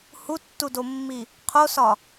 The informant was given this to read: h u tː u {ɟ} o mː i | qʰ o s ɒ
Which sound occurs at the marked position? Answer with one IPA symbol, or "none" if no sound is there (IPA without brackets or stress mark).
d